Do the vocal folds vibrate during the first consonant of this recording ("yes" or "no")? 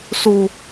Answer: no